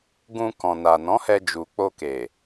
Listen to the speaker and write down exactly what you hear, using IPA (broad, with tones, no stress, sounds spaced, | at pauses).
ɡ ũ˧ k ɔ̃˨ n a˨ n ɔ̃˨˦ h ɛ˧ d͡ʒ u˨ k͡p o˧ k e˨